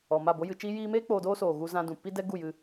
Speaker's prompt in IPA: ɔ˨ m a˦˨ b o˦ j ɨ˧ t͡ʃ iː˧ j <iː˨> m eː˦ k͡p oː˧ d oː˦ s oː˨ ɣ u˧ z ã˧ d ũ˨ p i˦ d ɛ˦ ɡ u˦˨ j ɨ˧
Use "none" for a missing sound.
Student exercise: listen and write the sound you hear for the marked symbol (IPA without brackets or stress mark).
iː˧